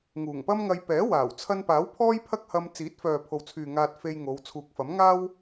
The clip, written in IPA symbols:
ŋ uː˨˩ ŋ p ɐ˥ m ŋ ɐ˧ j p ɛː˨˥ w aː˨˩ w t͡sʰ ɐ˧ n p aː˨˥ w pʰ ɔː˥ j pʰ ɐ˥ k̚ h ɐ˧ m t͡s iː˨˥ t̚ f œː˨ pʰ o˨ w t͡sʰ yː˨ ŋ aː˧ t̚ f e˧ j ŋ o˨˧ w t͡sʰ uː˨ k̚ f ɐ˨˥ m ŋ aː˥ w

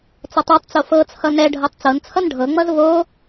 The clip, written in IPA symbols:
t͡s ʌ tˤ u tˤ t͡s o f ɤ t͡sʰ ʌ n ɛ ɖʱ ɤ tˤ t͡s ɤ n t͡sʰ ʌ n ɖʱ ɤ ŋ͡m ʌ z v o

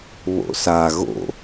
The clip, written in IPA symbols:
β o̰ s a ɣ o̰

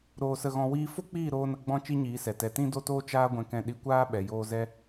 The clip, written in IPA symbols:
ɾ oː˧ s ə˧ ɣ ɔ̃˧ w iː˧ f o˦ k͡p iː˦˨ ɾ oː˦ n ə˧ ɡ͡b ɔ̃˦ t͡ʃ i˦ ɲ iː˨˦ s ɛ˨ t ɛ˨ t ĩ˦ d o˦ t oː˦ t͡ʃ aː˧ ɡʷ ɛ̃˨ k ɛ̃˧ ɗ i˧ kʷ aː˦ ɓ ɛ˨ j oː˧ z ɛ˧

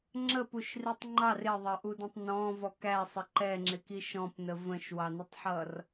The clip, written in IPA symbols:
ŋ͡ǁ ə p u ʃ r i tˤ ŋ͡ǃ ɑ r ɪ ðˤ ɜ ʔ u d ə̃ tˤ n ɔ̃ v ɔ k æ sˤ ə ǃ ɛ ŋ͡ǁ ɪ k i ʃ ɔ̃ p n ə v ə̃ ʃ w ɑ n ə tˤ ħ ʌ r

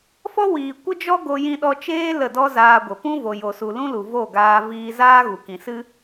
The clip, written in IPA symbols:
f ɔ˦ w iː˨ kʷ ə˦ d͡ʒ ɔ˦ ɡ o˧ j ĩ˧ ɗ ɔ˧ t͡ʃ eː˦ l ə˦˨ d ɔ˦ z aː˧ ɡʷ ə˨ p ũ˦ v o˨ j o˨ s u˨ l ũ˦ l u˨ v o˦˨ ɡ aː˧ v iː˧ z aː˦ ɣ u˨ k ĩ˨ s ɨ˦

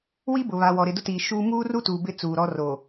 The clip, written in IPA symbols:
w i˦ b ʊ˨ β a˨ w ɔ˨ ɾ ɪ˨ d ʊ˦ t iː˨ ʃ uː˦ m uː˦ r u˦ t uː˨ b ɪ˦ t͡s uː˨ ɾ ɔ˦ r o˨

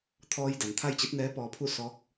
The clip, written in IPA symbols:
t̪ʰ ɔː˧ j d a˩˧ n t̪ʰ a˥˨ j t͡ɕ i˧˥ t̚ n ɛː˧˥ p ɔː˧ pʰ u˥˨ s ɔː˧˥ k̚

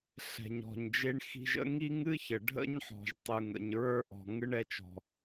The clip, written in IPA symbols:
ɬ ɛ̤˩ ɲ ɔ̤˩ ɲ d͡ʒ e˧ ɳ x i̤˧ ʒ ə̰˥ ŋ i˥ ŋ ɨ˥ ç ə˩ ɖʱ ə̰˥ ɲ ħ ɔ̤˩ ʒ tˤ ɯ˩ ŋ ə̰˩ ɲ ɹ ə˞˥ ʔ ɔ̤˩ ŋ ɯ˥ ɳ ɛ˧ t͡ʃ ɔ̤˩

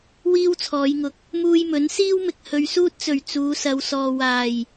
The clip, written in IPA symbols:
w iː˥ w t͡sʰ ɔː˨˧ j ŋ ʊ˨ k̚ | m uː˧ j m ɵ˨˥ n s iː˥ w m ɪ˨ k̚ h ɵ˨˧ ɥ s uː˥ t̚ t͡s ɵ˨˩ ɥ t͡s uː˨˧ s ɐ˨˧ w s ɔː˨ w aː˨˩ j

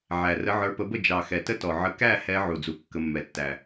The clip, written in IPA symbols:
ʕ æ˨˩ r ə˨˦ ʕ ə˞˨˦ p ə˨˦ b ə˥˩ d͡ʒ ɑ˨˩ x ɛ˨˩ t ə˥˩ t ɔ˨˩ ʕ ə˨˦ k æ˥˩ h ɛ˨˦ ʕ u˨˩ d͡z u˨˩ kː ə˨˦ mː ɛ˨˩ tː æ˨˩

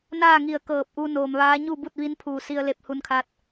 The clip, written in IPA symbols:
n aː˥˨ ŋ i˧˩ ə̯ k ɤː˧˩ p̚ ʔ u˧ n oː˩ m ʋ aː˧˥ ɲ u˥˨ b u˥˨ t̚ ʋ i˧˥ n pʰ uː˧˩ s i˧ ə̯ l e˧ p̚ h u˧ n kʰ a˧ t̚

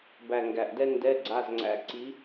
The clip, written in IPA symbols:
b æ˨˩ ŋ ɡ æ˨˩ ʔ d ɛ˥ n d ɛ˧˥˧ ɡ͡ǀ a˧˥˧ z ŋ͡ǀ æ̰˧˥˧ ǀ i˧˥

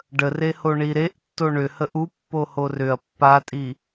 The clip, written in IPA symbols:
ɖ ə r e h o ɳ i ɾ e ʔ tː o ɳ ʏ h ə ʔ u pː o h o r ʏ ɐ̯ pː a tʼ i

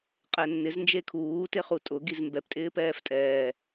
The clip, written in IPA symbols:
qʼ ɛ nː ɪ z n d͡ʒ e kʰ uː t e χ u tʼ ʊ ɡ i z m b ɛ p tʼ ɪː p ɛː f tʼ ɛː

